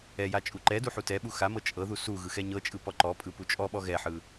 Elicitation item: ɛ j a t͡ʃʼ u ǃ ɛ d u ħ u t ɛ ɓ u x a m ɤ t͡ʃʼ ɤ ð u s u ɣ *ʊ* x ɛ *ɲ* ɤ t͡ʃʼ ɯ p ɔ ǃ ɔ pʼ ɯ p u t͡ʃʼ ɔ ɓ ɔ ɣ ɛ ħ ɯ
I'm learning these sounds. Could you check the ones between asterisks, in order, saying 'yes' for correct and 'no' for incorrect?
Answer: no, yes

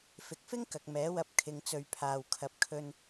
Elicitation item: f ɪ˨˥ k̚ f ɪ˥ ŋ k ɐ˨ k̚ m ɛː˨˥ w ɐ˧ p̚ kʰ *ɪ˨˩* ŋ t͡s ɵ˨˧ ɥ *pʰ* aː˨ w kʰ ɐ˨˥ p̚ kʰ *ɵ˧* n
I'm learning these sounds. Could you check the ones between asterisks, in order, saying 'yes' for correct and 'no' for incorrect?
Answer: no, yes, yes

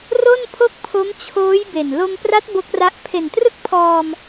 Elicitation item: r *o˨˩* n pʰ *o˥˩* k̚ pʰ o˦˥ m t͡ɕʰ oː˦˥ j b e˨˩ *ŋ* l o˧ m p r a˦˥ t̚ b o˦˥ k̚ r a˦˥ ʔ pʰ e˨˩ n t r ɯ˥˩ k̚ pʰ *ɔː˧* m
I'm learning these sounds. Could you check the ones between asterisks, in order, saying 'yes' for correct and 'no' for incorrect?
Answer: no, yes, no, yes

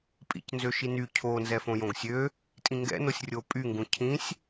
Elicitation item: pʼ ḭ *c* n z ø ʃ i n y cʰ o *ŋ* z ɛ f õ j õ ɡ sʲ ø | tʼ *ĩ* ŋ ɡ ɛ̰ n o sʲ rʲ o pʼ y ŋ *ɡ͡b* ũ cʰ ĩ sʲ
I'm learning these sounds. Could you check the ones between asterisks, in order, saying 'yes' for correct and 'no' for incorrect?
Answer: yes, no, yes, no

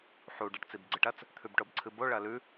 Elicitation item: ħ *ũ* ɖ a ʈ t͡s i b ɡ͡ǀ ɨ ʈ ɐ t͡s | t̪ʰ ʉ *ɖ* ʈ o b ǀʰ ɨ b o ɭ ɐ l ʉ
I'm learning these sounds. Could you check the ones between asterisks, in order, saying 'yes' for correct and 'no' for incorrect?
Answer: no, no

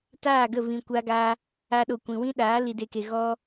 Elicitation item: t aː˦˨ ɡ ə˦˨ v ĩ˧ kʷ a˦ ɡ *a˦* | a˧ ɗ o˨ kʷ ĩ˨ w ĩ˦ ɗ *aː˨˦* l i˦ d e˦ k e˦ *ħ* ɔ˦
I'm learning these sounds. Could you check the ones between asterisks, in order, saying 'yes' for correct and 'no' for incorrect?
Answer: no, yes, no

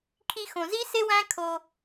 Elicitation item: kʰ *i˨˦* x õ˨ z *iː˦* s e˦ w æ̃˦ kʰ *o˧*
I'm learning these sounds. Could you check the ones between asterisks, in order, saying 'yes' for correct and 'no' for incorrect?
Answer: no, no, yes

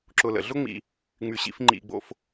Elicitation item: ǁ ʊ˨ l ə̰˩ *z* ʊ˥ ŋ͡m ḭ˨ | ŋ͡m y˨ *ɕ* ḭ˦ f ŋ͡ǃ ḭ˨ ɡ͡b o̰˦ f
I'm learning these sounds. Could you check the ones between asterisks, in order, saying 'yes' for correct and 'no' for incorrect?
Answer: no, yes

